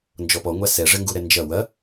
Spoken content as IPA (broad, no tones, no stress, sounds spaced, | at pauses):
n d͡ʒ ɔ p ɔ ŋʷ a s ɛ ʐ ɘ ŋ ɡ u ɾ ɛ n d͡ʒ ɐ w ɐ